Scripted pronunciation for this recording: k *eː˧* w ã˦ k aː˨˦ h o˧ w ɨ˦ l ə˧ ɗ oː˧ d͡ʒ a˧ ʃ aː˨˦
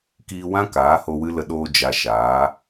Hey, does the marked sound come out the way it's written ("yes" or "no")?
no